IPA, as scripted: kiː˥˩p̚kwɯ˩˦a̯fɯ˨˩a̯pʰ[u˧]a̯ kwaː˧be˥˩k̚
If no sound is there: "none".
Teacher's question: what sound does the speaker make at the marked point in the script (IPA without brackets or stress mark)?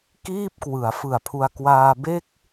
u˧